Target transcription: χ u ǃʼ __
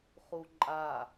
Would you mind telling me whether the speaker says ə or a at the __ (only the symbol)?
a